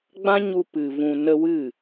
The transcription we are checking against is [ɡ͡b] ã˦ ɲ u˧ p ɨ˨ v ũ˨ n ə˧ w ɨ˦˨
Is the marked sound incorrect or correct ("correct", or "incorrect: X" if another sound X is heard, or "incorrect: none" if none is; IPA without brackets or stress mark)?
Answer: correct